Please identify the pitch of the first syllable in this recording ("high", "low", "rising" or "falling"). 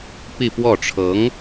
falling